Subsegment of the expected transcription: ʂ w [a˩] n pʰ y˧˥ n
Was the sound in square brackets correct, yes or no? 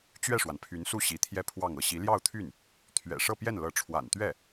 yes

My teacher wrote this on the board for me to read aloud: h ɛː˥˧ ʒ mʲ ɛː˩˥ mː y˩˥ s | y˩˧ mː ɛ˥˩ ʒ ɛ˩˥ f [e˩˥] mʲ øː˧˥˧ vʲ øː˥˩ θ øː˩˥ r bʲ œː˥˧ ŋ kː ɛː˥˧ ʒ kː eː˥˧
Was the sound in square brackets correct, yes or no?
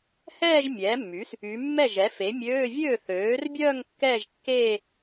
yes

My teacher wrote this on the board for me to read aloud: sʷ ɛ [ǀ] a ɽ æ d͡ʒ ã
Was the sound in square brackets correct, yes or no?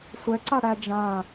yes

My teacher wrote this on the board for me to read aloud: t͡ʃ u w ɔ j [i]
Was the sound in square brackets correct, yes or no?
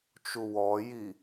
yes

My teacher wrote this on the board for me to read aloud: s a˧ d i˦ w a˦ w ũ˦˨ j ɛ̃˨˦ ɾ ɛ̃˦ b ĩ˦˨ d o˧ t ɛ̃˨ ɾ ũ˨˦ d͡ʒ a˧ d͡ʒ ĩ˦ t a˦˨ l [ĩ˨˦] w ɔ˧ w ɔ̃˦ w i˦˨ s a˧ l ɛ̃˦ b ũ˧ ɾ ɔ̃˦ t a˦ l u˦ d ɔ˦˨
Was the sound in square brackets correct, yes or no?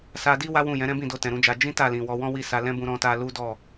no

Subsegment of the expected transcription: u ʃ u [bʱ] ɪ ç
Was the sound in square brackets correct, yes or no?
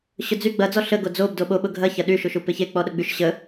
no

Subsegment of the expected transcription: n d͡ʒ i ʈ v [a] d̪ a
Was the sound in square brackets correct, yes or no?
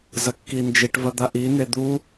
no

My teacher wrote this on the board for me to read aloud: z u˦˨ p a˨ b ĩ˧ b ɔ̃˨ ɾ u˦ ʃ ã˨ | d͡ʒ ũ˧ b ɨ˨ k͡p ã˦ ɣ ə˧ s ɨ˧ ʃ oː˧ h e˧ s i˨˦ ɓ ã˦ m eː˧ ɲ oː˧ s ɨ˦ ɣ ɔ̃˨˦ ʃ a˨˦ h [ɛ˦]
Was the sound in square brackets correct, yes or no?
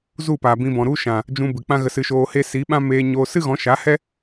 yes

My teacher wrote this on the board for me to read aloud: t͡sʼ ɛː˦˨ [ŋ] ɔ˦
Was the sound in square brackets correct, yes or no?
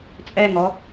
yes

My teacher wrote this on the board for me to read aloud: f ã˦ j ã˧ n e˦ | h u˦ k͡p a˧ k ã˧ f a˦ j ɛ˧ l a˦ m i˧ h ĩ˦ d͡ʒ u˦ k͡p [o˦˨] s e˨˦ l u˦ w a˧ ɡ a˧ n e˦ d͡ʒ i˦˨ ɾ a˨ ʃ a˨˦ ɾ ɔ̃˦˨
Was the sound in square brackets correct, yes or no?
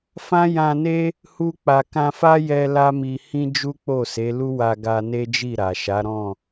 yes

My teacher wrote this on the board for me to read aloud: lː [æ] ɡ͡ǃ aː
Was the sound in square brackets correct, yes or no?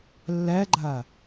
yes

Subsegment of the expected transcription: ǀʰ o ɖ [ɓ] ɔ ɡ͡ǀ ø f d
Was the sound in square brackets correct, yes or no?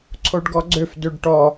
no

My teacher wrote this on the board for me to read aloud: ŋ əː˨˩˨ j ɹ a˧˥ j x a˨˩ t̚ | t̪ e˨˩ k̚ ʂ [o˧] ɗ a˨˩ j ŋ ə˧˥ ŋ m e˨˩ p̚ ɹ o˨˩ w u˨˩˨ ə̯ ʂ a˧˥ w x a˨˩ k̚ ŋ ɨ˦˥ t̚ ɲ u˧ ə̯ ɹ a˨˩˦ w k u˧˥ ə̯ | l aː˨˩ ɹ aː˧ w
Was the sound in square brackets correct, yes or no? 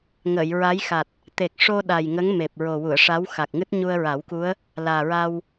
yes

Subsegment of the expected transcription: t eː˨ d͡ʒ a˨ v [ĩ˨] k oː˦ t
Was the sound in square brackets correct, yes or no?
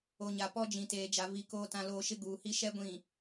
no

